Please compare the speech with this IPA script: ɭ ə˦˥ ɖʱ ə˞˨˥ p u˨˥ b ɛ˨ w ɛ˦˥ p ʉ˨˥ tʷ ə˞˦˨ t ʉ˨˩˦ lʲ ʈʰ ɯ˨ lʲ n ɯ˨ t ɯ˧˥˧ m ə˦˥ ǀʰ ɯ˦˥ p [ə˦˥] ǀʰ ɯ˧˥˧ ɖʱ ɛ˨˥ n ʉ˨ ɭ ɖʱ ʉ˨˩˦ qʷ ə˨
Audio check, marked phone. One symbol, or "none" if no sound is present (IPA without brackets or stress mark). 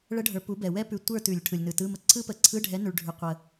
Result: ə˨˩˦